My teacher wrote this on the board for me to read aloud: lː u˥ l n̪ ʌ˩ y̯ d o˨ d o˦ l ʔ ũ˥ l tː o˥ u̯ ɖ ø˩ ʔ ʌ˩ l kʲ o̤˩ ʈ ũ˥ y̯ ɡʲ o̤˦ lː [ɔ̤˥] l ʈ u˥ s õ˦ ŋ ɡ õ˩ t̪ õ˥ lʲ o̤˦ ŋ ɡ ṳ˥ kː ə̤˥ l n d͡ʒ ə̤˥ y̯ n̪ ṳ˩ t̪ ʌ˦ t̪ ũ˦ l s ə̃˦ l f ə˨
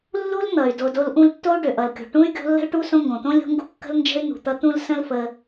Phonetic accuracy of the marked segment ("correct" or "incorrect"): incorrect